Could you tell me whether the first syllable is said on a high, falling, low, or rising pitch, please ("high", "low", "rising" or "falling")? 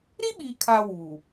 high